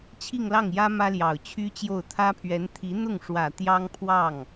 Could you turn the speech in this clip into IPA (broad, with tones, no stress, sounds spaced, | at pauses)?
t͡ɕʰ i˥˧ ŋ l ɑ˥˩ ŋ j ä˥ m ä˥ l j ɑ˨˩ ʊ̯ t͡ɕʰ y˥ t͡ɕ j o˥˩ ʊ̯ t̪ʰ ä˥ pʰ ɥ ɛ˧˥ n t̪ʰ i˧˥ n̪ ʊ˥˩ ŋ ʂ w ä˨˩ t̪ j ɑ˥ ŋ pʰ w ɑ˥˩ ŋ